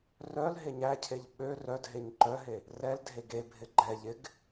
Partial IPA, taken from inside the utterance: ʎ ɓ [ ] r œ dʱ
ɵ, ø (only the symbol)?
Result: ø